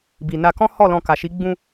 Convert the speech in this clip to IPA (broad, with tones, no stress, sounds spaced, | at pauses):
b i˨ n a˧ k ɔ̃˦ h ɔ˦˨ l ɔ̃˧ k a˨ ʃ i˨˦ ɡ͡b ũ˧